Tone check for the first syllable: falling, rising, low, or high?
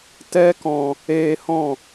high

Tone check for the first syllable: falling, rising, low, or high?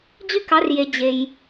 high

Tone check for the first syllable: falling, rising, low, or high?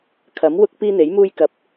rising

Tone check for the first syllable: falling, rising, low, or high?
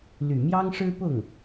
low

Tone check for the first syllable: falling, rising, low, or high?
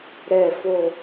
low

